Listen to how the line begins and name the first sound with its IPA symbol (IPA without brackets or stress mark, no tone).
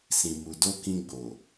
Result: s